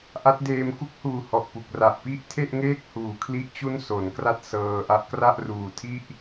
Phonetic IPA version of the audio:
ʔa˦˥t̚deː˧m ku˦˥k̚huː˨˩hɔ˨˩ʔ pu˨˩k̚ra˨˩ʔpi˥˩ʔ tʰe˥˩ʔŋeː˥˩k̚huː˨˩kʰli˦˥ʔ t͡ɕu˥˩nso˩˦n kra˥˩t̚sɤː˧ʔa˦˥ʔ kra˥˩ʔruː˨˩tʰi˥˩ʔ

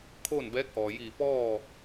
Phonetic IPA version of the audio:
kʰoː˥˨nbɛː˧˥k̚ʔɔː˩jiː˧˩ pɔː˥˨

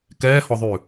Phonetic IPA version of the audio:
kɛːhɔðˤʉ

